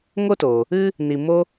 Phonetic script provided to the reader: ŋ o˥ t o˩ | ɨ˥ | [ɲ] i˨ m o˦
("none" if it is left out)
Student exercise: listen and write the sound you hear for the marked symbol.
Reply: n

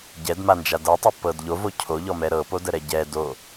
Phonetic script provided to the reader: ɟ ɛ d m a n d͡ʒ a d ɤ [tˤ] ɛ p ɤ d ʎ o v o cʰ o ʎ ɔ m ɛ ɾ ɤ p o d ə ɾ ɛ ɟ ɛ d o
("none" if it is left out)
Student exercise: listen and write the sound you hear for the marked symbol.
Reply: tˤ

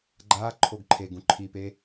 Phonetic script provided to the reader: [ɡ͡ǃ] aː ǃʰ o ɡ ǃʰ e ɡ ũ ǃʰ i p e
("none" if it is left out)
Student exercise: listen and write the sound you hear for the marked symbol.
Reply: ɡ͡ǃ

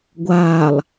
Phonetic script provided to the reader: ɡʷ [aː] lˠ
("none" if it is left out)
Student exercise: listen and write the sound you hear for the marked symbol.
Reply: aː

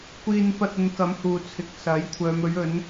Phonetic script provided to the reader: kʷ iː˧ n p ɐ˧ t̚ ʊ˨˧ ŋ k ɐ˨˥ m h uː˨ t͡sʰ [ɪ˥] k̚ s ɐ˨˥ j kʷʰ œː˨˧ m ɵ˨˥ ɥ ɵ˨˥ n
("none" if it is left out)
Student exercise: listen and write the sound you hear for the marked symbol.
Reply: ɪ˨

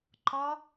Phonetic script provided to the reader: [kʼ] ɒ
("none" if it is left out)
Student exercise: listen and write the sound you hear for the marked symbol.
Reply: ǃ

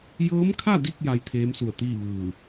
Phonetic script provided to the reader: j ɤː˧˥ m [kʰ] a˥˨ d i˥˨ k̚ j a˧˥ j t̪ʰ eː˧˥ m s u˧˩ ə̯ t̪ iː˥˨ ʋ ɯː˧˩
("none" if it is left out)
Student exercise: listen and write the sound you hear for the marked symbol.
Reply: kʰ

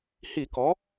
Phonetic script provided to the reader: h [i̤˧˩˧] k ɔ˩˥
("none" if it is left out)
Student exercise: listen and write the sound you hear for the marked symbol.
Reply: i˧˩˧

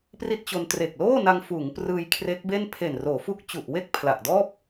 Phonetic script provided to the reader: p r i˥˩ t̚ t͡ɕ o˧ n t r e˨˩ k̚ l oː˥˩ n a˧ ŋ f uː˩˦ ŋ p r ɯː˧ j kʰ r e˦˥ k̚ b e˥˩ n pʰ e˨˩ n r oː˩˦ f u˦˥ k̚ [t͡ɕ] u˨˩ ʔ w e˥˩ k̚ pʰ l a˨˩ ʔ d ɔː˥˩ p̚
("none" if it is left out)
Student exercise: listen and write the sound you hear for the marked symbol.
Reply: t͡ɕ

